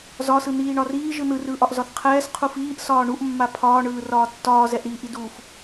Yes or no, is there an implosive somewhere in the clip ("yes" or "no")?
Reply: no